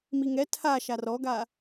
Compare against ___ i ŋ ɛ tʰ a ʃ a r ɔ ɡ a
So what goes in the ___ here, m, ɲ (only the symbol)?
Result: m